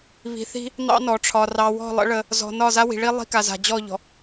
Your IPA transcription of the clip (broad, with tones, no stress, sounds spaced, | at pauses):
β i̤˨ θ i̤˦ | n̪ ɑ̰˦ n ɔ˨ ʈ͡ʂʰ ɒ˨ r ɑ˨ w ɔ̤˦˨ lˠ ə̰˦ ɭ ə˦ | z ɔ̤˨ n ɒ˦˨ z a˦ w i̤˨ ɭ i˦ lˠ i̤˦ k a˨ z a̤˨ d͡ʑ ɔ˦˨ ʎ ɔ̤˨